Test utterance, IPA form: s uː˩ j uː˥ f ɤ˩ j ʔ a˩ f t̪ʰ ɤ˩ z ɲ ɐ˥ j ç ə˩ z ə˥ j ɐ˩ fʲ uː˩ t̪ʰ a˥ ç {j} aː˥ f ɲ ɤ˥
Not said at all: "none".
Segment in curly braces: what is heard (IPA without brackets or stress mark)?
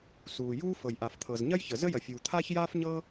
j